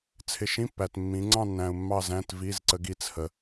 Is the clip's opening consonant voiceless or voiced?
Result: voiceless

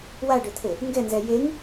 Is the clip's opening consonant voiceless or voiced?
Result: voiced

